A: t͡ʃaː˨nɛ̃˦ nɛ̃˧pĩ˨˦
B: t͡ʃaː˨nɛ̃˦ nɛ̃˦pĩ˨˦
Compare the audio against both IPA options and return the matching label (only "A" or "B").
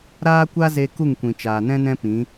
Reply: B